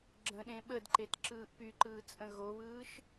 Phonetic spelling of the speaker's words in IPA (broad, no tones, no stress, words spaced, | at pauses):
ɡ͡ǁə̃ɗẽ ɓədǃet ǁɯːʔpyǃɯː t͡sʼə̃ɣoβɯːʃ